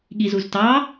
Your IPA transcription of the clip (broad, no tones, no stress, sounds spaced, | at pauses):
ɠ i z u z t ɑ